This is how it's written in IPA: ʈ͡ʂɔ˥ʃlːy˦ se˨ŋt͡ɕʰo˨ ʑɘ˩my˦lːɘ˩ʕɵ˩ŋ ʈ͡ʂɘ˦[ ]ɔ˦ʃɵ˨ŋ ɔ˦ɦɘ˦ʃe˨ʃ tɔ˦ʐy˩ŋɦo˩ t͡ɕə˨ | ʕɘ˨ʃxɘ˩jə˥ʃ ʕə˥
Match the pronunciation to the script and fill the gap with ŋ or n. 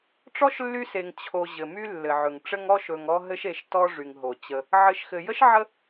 ŋ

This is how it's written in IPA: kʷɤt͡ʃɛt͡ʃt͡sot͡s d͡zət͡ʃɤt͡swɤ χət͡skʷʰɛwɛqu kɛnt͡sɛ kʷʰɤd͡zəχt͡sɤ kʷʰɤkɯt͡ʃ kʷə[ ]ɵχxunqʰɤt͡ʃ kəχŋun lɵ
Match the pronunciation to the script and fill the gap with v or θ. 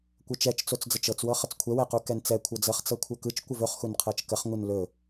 v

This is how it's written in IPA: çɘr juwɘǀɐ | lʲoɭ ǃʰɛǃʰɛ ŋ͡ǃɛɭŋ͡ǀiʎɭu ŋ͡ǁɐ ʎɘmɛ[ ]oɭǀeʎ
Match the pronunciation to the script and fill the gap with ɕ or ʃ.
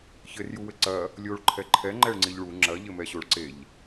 ɕ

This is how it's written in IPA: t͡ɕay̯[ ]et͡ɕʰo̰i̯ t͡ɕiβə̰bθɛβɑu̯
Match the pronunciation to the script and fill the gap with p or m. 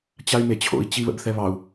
m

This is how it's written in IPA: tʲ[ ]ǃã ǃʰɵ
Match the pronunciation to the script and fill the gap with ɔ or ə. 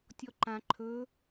ɔ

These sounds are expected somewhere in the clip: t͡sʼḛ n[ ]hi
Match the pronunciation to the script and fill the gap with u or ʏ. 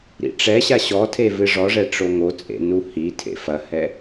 u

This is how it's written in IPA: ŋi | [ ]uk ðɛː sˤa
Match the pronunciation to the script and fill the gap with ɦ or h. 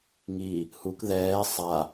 h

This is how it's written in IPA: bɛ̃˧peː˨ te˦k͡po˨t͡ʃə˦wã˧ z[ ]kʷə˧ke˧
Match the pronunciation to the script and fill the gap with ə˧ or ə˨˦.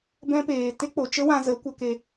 ə˨˦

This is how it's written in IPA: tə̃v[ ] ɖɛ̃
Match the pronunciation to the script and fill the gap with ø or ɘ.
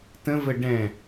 ɘ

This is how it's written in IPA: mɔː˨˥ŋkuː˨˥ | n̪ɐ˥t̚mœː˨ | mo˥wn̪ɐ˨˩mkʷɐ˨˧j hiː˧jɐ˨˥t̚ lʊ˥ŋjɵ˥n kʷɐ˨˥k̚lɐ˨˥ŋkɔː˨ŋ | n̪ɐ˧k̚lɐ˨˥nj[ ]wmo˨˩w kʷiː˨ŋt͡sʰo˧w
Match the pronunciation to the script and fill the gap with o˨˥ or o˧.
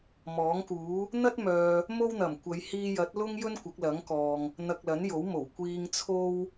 o˨˥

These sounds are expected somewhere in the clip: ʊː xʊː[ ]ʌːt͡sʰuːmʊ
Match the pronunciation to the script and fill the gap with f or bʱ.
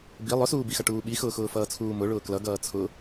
f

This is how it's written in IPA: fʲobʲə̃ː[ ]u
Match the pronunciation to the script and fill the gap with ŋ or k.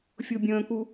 k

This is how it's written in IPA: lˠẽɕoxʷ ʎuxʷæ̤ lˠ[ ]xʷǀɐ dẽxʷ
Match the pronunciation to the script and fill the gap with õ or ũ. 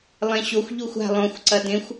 õ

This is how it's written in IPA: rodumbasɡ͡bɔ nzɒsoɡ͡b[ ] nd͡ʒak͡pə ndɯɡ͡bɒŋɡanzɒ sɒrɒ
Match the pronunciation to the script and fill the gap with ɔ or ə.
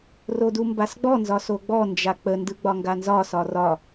ɔ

